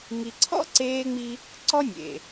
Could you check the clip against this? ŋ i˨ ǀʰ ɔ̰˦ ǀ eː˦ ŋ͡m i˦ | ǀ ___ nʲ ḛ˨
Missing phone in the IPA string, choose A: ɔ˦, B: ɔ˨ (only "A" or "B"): A